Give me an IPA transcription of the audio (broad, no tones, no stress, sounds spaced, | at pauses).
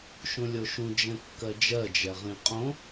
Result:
ʃ ũ lʲ o ʃ ũ d͡ʒ ɛ̃ kː ɜ d͡ʒ ɜ d͡ʒ ɛ ʁ ĩ qʼ õ